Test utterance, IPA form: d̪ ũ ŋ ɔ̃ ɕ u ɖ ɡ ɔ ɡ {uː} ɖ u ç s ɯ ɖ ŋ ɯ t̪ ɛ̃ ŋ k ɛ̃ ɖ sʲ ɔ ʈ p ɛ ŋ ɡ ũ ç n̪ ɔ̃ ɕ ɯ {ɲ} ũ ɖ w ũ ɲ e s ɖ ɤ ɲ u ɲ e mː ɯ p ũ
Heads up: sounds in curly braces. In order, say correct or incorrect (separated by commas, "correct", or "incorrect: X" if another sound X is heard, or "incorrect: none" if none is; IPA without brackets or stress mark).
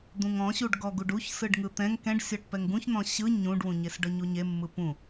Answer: incorrect: u, correct